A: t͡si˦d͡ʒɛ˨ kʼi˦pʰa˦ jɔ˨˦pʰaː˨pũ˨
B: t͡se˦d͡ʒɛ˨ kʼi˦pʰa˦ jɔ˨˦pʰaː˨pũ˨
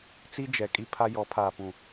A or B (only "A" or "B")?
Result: A